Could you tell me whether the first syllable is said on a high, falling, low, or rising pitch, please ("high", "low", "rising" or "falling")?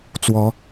rising